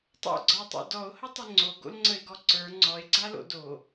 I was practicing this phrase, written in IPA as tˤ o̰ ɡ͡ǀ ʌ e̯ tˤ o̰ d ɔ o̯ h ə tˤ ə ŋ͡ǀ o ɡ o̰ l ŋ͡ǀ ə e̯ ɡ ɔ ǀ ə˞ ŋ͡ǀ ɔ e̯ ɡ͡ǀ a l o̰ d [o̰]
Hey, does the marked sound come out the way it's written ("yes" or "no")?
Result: no